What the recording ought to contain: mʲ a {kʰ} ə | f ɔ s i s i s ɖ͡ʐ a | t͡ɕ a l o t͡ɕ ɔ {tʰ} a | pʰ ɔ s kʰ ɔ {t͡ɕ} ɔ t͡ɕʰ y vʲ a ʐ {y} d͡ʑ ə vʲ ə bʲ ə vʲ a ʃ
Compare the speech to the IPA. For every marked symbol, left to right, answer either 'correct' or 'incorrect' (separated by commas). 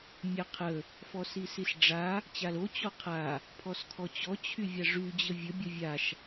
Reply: incorrect, incorrect, correct, correct